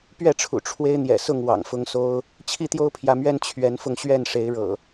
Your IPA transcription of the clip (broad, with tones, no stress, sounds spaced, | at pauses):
p ɥ ɛ˥˨ ʈ͡ʂʰ ṵ˨˩ ʈ͡ʂʰ w e˦ ɪ̯ n̪ j ɛ̰˨˩ s ʊ˥˨ ŋ w ɑ̰˨˩ ŋ f ʊ˦ ŋ s o˦ ʊ̯ | t͡ɕʰ i˦ t̪ j o˦ ʊ̯ pʰ j ä˨˦ m ɥ ɛ˦ n t͡ɕʰ ɥ ɛ˨˦ n f ʊ˧ ŋ ɕ ɥ ɛ˥˨ n ʂ e˨˦ ɪ̯ ɻ ɤ̰˨˩